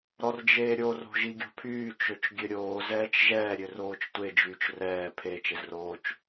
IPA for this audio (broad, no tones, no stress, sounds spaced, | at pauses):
ɾ ɔ r d͡ʒ eː ɾʲ o r o̤ ʒ i ɡʲ o̤ pʰ yː t͡ʃ ø t͡ʃ ɡʲ ø ɾʲ oː z ɛː t͡ʃ ʒ ɛː ɾʲ ø r oː t͡ʃ tʷ e d͡ʒ yː t͡ʃ r ɛː pʰ eː t͡ʃ e z r oː t͡ʃ